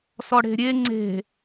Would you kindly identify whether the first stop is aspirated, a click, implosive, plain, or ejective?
click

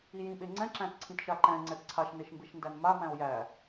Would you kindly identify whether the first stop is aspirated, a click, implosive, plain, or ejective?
implosive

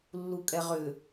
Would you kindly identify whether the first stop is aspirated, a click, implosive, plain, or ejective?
ejective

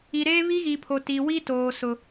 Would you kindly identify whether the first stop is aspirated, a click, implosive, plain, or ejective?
aspirated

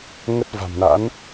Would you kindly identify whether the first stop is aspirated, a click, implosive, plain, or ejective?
plain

